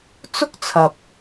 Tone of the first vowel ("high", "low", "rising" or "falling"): high